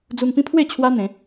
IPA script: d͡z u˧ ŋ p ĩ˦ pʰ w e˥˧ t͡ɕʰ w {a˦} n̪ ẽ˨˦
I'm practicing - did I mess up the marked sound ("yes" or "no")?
no